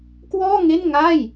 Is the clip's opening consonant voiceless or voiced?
voiceless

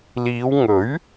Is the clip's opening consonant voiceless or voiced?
voiced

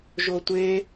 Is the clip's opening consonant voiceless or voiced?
voiced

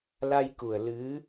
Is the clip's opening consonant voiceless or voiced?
voiced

